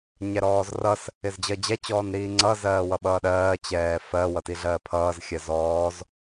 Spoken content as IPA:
ɲɛɾɔːzrʌs | ɪzd͡ʑɜd͡ʑɛ t͡ɕɔːnɾiːŋ͡ǀʌ zɜːwʌɓʌːɗɜː t͡ɕɛːfɜ wʌtiɮɜːpʰʌːz xʲɜzɔːz

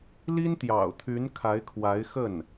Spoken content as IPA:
li˥nt̪jɑ̰˨˩ʊ̯t̪ʰy˧˥n kʰa˧˥ɪ̯kʰwa˧˥ɪ̯xə˥˩n

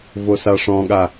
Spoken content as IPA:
vosaʂɔ̃ɠa

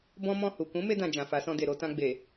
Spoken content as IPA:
bɔ̃˦mɔ̃˦˨hu˨ kũ˨˦me˧dã˨ d͡ʒã˨fa˨˦sɔ̃˧de˨ ɾo˧tã˧ɡ͡be˨

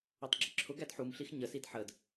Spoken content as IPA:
ɔtˤɡ͡ǁɪǁʰʊɡæd ħumɬix ɲəsid ħəd

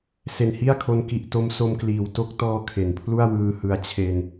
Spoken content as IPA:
se˨˩nhi˥˩a̯kʰo˦˥n ki˦˥ʔ to˦˥mso˧mkliː˩˦w to˦˥k̚tɔː˧ kʰe˩˦npʰlu˥˩a̯wɯː˧hɯ˧a̯ t͡ɕʰe˧n

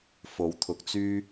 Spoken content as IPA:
fo˨˥wt̪ʰʊ˨k̚t͡syː˥

